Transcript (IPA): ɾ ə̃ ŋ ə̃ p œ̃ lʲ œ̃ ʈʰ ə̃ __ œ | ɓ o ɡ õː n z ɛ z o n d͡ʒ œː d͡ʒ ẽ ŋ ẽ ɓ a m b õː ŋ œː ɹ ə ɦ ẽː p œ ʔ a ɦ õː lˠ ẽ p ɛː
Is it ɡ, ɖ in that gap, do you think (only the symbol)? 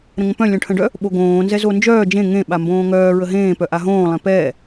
ɖ